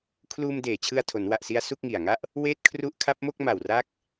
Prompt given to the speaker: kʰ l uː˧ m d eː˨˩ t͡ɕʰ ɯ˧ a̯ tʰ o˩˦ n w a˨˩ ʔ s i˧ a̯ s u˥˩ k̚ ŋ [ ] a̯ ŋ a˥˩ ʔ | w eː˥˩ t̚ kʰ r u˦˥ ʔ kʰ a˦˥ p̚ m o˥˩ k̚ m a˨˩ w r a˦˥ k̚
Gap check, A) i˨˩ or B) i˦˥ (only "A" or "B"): A